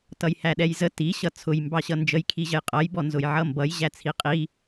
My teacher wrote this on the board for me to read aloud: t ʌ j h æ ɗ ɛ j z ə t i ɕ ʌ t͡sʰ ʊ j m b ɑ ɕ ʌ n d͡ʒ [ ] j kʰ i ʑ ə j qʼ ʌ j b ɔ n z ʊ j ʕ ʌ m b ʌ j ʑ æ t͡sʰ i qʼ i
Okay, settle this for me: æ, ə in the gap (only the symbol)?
ə